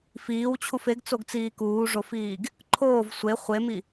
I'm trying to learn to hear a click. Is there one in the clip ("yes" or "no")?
yes